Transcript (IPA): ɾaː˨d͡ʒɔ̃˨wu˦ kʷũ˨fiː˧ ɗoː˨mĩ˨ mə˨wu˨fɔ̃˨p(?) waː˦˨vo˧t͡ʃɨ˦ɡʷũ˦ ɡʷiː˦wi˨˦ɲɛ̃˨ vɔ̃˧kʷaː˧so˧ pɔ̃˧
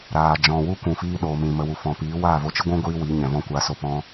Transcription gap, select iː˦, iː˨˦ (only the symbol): iː˨˦